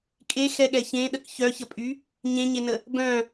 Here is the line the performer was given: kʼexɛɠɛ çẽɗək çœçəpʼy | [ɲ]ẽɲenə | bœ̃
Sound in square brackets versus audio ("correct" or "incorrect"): correct